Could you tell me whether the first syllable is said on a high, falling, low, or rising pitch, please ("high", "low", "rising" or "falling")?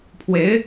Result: rising